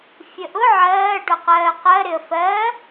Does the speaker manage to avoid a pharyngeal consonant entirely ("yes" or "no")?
no